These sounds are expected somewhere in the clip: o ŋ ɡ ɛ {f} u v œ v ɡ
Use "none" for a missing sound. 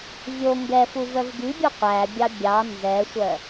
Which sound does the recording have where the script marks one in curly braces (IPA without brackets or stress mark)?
f